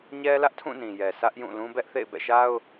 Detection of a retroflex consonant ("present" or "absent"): absent